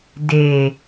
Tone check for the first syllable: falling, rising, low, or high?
low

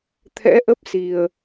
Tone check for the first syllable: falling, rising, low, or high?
rising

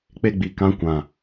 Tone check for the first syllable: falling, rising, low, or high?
high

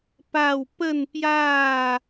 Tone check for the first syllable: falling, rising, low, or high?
falling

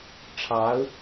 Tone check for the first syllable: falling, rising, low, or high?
rising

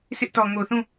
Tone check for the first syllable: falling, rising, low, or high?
high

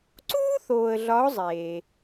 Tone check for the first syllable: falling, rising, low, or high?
high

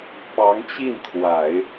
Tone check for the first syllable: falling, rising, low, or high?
rising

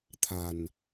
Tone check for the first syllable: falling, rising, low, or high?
low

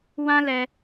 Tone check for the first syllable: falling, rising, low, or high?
high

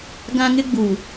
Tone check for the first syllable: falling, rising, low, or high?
high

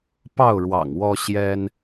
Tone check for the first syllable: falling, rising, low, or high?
falling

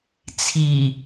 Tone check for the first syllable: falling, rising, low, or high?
low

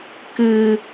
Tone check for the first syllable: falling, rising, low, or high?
low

